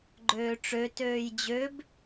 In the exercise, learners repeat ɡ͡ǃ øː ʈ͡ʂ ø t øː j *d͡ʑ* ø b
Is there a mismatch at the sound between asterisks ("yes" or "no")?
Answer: no